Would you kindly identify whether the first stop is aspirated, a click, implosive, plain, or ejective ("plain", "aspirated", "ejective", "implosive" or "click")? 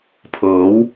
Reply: aspirated